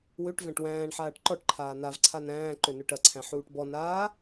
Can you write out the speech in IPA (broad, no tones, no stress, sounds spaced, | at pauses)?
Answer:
w ø ʈ v æ̃ ʈ w æ̃ː ɳ ħ aː ʈ ǃ ɔ ʈ ǃʰ aː n a v ǀʰ a n æ̃ː ǃ ø n ø ʈ ɐ ǀʰ æ̃ ħ uː ʈ b ɔ n aː